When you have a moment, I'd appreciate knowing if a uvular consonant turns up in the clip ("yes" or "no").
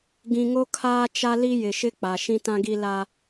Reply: no